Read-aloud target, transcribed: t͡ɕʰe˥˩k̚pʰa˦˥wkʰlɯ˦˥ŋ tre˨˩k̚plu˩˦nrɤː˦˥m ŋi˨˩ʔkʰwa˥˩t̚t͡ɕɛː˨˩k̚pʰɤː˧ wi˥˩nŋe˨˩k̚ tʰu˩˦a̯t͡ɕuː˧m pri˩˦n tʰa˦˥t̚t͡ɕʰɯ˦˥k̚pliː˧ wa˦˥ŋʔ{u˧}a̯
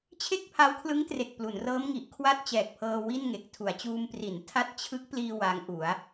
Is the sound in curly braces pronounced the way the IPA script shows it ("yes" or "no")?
no